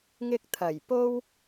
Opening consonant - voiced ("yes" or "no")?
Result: yes